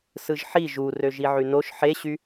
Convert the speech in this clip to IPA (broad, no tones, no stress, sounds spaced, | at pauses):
s ɯ ʒ ħ i ʒ u r ø ʒ i ʕ y n o ʃ ħ e ɕ y